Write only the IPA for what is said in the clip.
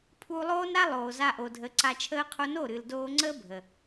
pʰuː˧lˠoː˦nɾa˦ lˠoː˨za˧ʔo˨ dʱə˨˦ǀa˧t͡ʃʰəː˦qʰo˦ no˦˨ɾɨ˨ldoː˧ŋ͡ǀə˦ bʱə˨

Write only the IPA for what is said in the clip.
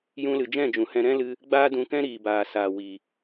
jũ˧lɨ˨ d͡ʒɛ̃˦˨d͡ʒũ˨hɛ̃˧ ɾɛ̃˦lɨ˧ | ɡ͡baː˦dũ˧kɛ̃˦ ɾiː˨baː˨saː˨ wi˨

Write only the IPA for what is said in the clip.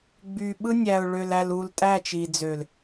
ɡ͡by˨ɓɯ˦ nʲæ˨ʊ̯ɭø˨læ˨lu˨l tʼæ˦˨t͡ʃi˨d͡zø˨l

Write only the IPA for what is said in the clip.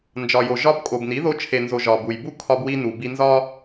nd͡ʒɒ˨jo˨ ʒɒ˧bkʼo˨bni˨˦ ðo˧t͡ʃʰe˨nzo˨ ʒɒ˨bu˨jbu˦ kʰɒ˧bwi˧ nu˨bi˧nzɒ˦

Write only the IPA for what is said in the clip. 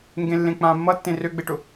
ŋɡẽlːẽk͡pãːmːʌ tːẽrøɡ͡beʈʊ

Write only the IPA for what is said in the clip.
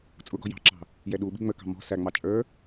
t͡sʼʊɡɔ̤ jɑ̤ǁɑ̤ | jɛɗuɓi̤ ŋ͡məkɑ̤ mɔ̤ sæŋ͡mɑ t͡ʃʼə˞

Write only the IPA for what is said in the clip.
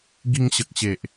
ɡi˧ŋɕə˨k̚ɕe˨ʔ

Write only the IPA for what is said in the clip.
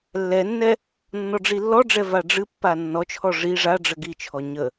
lːɛnːɛ | nːɔɖ͡ʐilːɔɖ͡ʐɛ vaɖ͡ʐɨpːa nːɔt͡ʃʰɔ ʐi ʐaɖ͡ʐə ɡit͡ʃʰɔ ɲə

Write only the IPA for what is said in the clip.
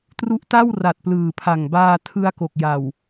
tru˦˥ʔta˥˩wra˨˩t̚ plɯː˨˩pʰa˨˩ŋbaː˧ tʰɯ˧a̯ko˨˩k̚ja˨˩w

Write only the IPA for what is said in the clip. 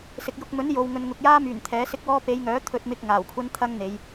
sɪ˨k̚ jʊ˨k̚mɵ˨˥n jo˨w ŋɵ˨nŋʊ˨k̚jaː˥myː˨˩n t̪ʰɛː˨˥sɪ˥k̚wɔː˥ pe˨˧jŋœː˨˥ t̪ʰɵ˧t̚mɪ˧k̚ ŋaː˨˩wkʷʰɐ˥nt̪ʰɐ˥ŋn̪e˨˧j

